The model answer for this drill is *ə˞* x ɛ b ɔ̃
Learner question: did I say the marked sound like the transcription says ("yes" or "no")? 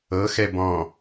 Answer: no